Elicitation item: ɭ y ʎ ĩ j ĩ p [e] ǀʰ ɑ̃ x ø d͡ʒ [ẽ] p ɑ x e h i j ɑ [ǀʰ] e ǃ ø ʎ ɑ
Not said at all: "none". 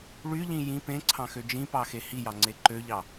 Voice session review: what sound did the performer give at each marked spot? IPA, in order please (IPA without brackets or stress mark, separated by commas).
ẽ, ĩ, ŋ͡ǀ